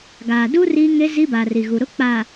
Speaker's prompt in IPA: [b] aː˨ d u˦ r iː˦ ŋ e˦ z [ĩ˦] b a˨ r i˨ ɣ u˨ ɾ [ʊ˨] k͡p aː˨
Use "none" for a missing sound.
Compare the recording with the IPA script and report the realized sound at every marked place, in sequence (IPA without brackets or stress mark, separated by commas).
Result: ɡ, i˦, ʊ˦